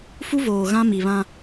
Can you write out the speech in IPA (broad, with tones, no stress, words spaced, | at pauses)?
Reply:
fu˦voː˨ ɣã˦mi˨βã˦